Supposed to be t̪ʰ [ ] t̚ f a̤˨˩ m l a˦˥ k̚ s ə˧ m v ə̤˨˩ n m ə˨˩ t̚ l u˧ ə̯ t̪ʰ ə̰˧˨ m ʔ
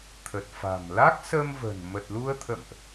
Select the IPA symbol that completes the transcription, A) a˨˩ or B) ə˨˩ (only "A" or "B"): B